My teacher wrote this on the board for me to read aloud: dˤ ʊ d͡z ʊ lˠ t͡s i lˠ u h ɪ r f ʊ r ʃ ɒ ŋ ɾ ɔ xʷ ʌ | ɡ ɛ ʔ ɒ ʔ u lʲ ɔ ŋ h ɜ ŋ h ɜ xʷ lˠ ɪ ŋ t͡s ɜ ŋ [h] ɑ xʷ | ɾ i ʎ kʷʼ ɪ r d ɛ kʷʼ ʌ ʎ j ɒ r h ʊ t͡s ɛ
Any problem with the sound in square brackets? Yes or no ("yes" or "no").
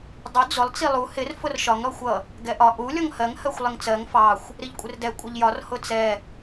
yes